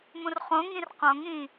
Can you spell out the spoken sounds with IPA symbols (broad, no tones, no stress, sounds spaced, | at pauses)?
m ũ r χ õ ŋ ĩ r q õ ŋ ĩ